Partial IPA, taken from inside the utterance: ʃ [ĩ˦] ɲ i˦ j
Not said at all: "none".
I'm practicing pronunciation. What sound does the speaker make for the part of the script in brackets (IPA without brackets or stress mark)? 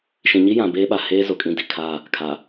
ĩ˨